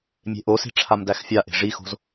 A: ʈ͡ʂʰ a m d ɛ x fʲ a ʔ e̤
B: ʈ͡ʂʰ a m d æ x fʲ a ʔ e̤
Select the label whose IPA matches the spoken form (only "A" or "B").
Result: B